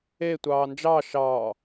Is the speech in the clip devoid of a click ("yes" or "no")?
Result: yes